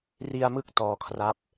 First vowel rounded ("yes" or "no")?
no